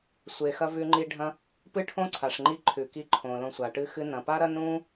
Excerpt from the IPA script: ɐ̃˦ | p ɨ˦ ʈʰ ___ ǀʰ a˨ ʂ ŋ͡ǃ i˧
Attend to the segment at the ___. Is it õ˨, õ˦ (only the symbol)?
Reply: õ˦